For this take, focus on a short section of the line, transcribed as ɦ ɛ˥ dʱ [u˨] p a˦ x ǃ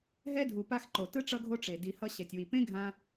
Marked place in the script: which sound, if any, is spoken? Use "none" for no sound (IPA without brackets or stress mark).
u˨